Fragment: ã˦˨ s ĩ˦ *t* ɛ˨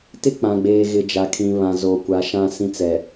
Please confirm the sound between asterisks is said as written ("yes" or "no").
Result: no